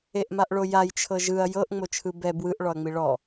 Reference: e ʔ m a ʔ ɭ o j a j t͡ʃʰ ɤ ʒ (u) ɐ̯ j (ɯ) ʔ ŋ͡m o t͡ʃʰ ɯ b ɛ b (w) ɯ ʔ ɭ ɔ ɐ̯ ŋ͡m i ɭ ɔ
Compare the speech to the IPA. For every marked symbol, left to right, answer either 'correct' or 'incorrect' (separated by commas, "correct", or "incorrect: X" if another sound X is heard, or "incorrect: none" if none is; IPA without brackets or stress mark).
incorrect: ɯ, incorrect: ɤ, correct